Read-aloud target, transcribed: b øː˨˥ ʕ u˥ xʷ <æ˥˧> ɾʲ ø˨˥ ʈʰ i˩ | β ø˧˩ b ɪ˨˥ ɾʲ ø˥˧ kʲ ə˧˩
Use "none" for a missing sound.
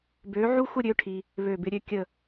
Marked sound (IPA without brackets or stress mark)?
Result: ə˥˧